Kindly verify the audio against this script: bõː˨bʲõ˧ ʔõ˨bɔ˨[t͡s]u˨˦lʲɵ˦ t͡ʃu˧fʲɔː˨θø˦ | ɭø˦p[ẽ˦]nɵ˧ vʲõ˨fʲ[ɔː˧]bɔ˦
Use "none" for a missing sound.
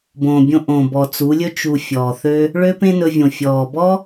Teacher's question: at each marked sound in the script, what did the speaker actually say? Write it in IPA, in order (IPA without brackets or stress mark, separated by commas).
t͡s, ẽ˦, ɔː˨